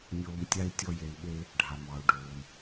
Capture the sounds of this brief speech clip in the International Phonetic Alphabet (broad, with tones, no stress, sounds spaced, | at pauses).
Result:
nʲ oː˧ m tʲ a˥ i̯ tʲ ɔ˥ j e˧ i̯ ɓ e˥ | ɖʱ a˩ m ɑ˩ u̯ ɖ oː˩ m